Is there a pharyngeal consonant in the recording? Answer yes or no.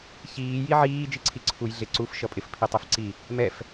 yes